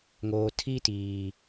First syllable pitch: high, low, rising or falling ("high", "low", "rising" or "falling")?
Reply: low